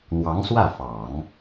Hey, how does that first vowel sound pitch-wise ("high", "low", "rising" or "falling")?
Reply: rising